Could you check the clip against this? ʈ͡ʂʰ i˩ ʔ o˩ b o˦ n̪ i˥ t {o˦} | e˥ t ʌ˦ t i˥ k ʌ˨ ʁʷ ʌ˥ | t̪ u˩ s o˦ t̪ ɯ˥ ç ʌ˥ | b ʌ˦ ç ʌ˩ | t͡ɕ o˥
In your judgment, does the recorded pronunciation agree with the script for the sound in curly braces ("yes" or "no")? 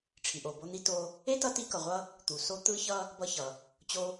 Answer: yes